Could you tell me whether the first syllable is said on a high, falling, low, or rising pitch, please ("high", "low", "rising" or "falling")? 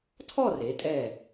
falling